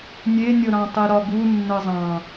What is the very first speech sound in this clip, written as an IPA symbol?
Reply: nʲ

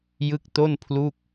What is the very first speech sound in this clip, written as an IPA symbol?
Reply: j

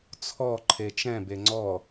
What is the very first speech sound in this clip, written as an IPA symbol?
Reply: t͡sʰ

